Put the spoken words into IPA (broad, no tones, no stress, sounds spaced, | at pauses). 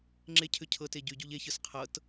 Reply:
ŋ͡ǁ e cʰ ʏ cʰ ɤ t e ɟ y ɟ u ʎ e ç ɯ s qʰ ɤ t